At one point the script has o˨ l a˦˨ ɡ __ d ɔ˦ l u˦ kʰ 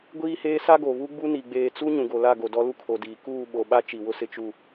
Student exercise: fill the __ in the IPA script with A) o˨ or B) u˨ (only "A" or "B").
A